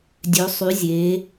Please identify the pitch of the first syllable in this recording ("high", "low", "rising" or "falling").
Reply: rising